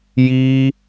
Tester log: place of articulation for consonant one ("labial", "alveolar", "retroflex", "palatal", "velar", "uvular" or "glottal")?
palatal